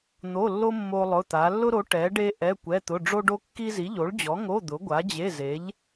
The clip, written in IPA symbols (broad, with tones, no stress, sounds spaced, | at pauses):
n̪ o˧˥˧ lː o˥ mː o˥ lˠ ʊ˧˥˧ t̪ a˨˥ lː ʊ˥ ɾ o˨˥ ʈ ɛ˨˥ ɖ e˥ ʔ ɛ˧˥˧ kʷ ɛ˧˥˧ t̪ ʊ˧˥˧ ɖ͡ʐ o˥ ɖ o˥ kː i˥ z i˨˥ ʎ o˨˥ ɭ d͡ʑ ɔ˨˥ ŋ o˧˥˧ d̪ ʊ˨˥ ɡʷ a˨˥ d͡ʑ e˧˥˧ z e˨˥ ʎ